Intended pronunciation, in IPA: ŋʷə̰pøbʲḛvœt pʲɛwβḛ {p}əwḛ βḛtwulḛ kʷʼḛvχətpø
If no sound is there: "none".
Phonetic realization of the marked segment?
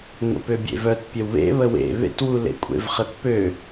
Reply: β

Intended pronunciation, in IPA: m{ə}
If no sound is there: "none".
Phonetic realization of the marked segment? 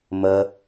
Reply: ə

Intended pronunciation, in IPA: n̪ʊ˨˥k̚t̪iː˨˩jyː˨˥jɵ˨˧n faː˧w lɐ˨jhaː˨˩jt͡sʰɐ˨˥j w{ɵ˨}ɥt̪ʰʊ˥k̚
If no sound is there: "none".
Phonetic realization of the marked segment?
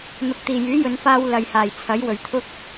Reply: ɵ˨˩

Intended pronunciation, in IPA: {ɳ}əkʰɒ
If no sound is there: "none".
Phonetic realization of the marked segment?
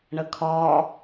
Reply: ɳ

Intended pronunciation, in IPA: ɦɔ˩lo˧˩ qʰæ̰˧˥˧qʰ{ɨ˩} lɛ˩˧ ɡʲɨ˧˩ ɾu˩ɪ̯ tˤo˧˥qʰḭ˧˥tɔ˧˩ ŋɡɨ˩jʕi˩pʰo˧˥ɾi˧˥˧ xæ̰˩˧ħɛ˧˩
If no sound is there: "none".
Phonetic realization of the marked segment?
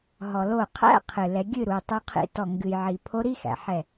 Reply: ɨ˩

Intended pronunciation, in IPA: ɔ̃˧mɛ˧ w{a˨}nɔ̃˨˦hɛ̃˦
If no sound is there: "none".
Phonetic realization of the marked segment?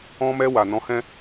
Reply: a˨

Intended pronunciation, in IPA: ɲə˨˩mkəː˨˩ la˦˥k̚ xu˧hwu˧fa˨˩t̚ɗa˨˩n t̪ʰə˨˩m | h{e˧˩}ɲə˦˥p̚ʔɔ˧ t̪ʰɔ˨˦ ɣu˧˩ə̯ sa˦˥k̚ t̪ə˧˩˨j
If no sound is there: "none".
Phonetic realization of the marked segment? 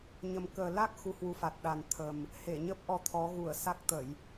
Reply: e˧˩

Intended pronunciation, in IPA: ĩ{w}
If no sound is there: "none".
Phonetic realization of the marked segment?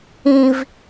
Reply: v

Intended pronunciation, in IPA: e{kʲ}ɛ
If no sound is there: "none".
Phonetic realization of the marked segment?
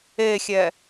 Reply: xʲ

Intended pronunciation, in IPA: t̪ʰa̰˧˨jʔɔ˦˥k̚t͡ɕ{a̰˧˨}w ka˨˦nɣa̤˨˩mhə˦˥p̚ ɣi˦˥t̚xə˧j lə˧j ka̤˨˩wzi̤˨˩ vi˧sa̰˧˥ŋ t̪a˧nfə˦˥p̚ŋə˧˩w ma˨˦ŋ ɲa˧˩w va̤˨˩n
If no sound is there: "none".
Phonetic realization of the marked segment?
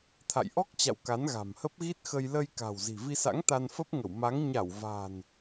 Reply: a̰˧˨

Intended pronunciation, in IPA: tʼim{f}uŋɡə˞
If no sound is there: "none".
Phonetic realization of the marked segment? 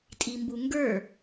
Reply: b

